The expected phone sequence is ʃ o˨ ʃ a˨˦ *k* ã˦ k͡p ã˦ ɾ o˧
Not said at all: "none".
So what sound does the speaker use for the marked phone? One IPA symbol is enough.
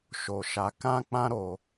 k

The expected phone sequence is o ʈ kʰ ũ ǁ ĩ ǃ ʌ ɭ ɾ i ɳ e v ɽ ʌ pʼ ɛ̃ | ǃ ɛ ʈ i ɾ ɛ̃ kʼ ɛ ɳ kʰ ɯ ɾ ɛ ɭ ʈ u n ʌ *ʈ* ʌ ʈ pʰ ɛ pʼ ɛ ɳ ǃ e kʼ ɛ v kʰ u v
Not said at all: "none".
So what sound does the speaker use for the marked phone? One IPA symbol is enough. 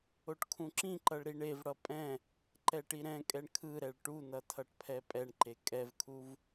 tʰ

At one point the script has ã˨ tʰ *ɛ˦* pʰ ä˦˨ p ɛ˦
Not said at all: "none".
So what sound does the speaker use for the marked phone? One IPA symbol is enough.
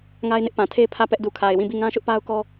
e˦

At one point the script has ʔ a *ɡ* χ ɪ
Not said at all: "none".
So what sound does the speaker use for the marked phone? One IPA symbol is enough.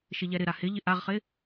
ʁ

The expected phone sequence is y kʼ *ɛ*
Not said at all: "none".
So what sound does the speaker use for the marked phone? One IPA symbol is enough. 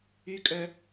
œ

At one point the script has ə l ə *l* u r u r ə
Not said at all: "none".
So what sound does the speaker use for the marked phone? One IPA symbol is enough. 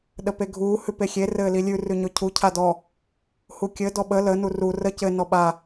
n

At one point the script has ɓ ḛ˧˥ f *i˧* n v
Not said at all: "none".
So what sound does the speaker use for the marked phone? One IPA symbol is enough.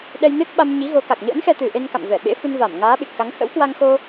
ɨ˧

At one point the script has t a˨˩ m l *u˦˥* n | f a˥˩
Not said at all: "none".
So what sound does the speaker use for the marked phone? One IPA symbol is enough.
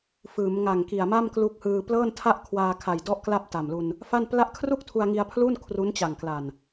u˧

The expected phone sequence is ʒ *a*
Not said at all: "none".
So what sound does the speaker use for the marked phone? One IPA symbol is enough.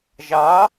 ɑ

